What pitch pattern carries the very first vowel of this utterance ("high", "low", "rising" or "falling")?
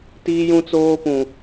high